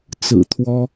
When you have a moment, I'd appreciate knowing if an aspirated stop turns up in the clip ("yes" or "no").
yes